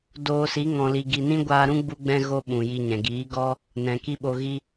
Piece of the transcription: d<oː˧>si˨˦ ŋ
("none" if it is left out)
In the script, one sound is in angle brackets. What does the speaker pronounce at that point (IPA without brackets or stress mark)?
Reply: oː˧